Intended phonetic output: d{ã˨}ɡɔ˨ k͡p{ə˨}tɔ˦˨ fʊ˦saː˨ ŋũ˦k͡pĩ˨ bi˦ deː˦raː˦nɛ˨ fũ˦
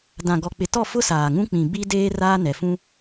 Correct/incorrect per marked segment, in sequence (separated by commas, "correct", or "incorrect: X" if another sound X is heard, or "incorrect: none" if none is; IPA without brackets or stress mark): correct, incorrect: ɪ˨